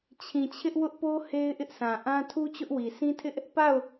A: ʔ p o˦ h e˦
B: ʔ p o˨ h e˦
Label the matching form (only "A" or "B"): A